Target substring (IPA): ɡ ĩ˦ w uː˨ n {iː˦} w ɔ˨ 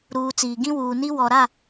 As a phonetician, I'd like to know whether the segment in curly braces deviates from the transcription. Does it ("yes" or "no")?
yes